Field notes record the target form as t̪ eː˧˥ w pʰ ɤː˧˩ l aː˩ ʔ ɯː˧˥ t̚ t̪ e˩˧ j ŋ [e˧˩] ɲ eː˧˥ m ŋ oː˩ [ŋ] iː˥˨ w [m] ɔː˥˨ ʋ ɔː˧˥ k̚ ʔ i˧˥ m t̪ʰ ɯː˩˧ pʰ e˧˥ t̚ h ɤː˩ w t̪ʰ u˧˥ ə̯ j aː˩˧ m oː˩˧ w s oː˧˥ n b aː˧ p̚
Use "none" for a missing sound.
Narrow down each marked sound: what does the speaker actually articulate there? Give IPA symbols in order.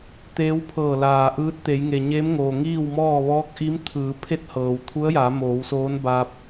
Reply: e˩, ŋ, m

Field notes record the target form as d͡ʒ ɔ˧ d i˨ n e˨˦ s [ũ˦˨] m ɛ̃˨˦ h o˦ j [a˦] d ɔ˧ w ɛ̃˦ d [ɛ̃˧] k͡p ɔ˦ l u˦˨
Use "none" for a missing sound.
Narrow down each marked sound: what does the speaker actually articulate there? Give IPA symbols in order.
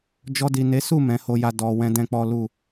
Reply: u˦˨, a˦, ɛ̃˦

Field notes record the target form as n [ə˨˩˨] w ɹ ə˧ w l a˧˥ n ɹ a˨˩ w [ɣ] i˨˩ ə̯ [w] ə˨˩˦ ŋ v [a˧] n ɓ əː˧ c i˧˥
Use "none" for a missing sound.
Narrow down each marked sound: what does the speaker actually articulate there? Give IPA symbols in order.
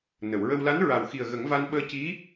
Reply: ə˨˩˨, x, ɣ, a˧

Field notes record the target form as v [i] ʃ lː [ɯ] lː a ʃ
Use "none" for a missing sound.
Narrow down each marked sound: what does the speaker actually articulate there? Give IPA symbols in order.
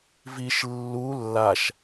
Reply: i, u

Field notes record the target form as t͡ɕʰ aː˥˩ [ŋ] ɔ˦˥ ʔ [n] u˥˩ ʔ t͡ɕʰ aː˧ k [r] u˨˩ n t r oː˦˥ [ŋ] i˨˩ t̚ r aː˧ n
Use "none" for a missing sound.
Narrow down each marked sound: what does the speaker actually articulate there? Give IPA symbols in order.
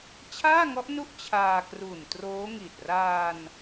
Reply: ŋ, n, r, ŋ

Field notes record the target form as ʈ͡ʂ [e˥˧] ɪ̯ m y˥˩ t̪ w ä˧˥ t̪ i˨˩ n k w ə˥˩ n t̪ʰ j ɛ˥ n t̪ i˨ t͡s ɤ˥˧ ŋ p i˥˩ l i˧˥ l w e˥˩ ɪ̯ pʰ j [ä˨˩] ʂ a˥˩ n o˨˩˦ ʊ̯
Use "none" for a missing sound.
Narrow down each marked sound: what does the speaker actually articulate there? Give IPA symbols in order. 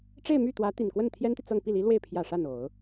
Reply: e˥˧, ä˨˩

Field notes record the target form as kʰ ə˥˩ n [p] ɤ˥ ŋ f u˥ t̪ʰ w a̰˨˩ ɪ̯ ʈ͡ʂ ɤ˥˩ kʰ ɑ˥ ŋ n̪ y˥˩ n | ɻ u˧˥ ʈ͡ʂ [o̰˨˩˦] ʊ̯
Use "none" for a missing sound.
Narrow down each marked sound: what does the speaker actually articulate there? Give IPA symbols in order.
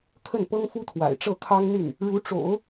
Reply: p, o̰˨˩˦

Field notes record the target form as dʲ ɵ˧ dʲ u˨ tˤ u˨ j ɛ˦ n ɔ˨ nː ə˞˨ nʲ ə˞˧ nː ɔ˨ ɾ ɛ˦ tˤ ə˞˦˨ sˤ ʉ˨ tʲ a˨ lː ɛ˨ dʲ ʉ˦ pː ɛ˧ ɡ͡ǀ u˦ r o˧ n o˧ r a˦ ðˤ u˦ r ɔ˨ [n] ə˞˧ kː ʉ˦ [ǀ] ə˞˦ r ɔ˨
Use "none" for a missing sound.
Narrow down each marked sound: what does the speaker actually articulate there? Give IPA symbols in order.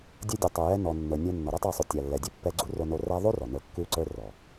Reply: n, ǀ

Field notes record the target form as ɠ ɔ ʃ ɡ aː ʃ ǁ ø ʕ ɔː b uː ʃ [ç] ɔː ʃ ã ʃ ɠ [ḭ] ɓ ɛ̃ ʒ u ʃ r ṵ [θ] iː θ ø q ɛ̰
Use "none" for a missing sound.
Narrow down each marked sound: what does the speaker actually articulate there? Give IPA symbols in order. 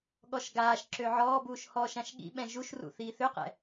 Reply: h, ḭ, θ

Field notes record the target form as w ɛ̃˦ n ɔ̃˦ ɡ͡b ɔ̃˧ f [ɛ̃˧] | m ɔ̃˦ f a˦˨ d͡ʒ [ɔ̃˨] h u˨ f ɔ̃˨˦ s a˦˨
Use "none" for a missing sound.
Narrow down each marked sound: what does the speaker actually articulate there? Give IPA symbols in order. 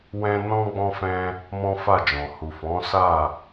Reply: ɛ̃˧, ɔ̃˨

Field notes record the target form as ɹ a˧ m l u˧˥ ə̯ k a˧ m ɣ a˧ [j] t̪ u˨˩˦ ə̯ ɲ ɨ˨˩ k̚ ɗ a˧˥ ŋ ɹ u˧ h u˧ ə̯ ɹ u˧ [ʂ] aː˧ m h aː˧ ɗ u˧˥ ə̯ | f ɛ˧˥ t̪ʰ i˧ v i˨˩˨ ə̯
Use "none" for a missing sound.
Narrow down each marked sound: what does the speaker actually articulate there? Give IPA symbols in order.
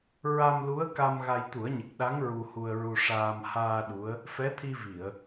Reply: j, ʂ

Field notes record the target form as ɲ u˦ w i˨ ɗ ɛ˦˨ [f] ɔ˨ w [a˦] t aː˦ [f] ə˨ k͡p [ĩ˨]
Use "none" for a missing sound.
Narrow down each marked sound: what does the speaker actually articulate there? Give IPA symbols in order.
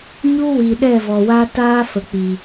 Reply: v, a˦, f, i˨

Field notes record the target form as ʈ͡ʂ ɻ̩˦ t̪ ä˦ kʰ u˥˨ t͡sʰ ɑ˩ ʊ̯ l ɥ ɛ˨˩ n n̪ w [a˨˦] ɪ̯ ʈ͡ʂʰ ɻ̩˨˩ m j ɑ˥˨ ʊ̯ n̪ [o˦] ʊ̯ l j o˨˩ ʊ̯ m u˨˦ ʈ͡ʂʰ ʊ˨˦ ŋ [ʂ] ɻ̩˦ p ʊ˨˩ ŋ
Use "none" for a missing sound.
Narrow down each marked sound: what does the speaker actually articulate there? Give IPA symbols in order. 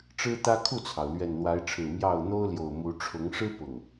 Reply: a˨˦, o˦, ʂ

